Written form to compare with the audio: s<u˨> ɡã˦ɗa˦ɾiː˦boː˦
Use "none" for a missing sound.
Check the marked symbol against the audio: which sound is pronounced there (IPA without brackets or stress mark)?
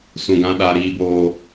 ũ˨